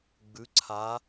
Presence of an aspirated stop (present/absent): present